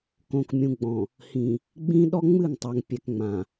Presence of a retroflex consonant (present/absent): absent